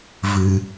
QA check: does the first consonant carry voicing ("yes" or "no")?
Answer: yes